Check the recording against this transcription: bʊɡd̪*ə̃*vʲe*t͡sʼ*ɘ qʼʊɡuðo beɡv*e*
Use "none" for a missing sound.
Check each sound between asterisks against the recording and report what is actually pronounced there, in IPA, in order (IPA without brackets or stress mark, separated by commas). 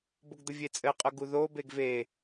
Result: ə, t͡sʼ, e